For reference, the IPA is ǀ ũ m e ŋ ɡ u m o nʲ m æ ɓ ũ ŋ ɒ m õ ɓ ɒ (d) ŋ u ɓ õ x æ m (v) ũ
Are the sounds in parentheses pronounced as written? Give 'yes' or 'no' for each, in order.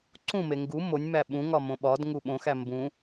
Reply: yes, no

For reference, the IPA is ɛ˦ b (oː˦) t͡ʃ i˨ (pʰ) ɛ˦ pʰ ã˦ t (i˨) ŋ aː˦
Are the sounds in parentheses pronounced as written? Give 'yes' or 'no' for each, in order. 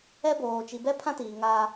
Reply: no, no, no

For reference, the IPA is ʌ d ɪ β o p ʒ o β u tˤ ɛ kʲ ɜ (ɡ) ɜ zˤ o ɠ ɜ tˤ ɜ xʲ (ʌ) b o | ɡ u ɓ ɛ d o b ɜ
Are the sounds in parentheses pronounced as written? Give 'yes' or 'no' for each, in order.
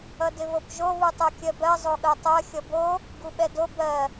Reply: no, yes

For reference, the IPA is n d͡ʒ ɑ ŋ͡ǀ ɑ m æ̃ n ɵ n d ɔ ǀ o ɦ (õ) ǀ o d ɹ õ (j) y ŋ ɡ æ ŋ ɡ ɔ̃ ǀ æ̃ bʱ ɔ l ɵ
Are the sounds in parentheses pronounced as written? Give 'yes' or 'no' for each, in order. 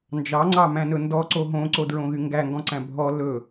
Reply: yes, no

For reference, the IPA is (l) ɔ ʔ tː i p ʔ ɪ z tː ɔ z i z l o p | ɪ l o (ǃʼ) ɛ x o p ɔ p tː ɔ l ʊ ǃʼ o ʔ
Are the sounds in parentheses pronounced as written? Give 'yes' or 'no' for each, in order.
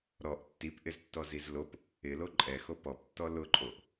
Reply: no, yes

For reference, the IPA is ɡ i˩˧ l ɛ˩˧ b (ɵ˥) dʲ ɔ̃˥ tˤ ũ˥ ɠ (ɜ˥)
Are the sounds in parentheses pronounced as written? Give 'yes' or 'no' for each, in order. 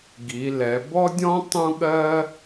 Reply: no, yes

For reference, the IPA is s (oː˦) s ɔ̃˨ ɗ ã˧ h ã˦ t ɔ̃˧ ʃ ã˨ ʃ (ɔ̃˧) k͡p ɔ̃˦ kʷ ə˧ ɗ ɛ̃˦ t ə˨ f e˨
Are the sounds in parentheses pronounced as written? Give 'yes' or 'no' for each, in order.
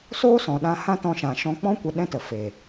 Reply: yes, yes

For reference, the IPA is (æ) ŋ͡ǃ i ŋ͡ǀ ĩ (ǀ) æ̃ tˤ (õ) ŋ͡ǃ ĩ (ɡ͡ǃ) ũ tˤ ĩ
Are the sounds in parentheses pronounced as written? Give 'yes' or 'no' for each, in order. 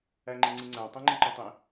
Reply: yes, no, no, no

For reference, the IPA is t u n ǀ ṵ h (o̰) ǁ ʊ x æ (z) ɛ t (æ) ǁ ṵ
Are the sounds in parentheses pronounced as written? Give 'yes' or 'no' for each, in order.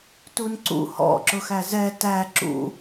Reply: no, yes, yes

